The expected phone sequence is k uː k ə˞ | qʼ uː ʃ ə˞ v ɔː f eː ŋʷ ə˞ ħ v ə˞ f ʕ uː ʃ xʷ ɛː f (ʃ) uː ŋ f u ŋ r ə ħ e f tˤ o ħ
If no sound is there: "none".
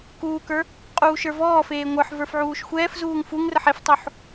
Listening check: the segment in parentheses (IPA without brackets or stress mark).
z